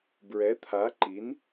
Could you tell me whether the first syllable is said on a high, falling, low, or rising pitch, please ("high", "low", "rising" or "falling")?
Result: rising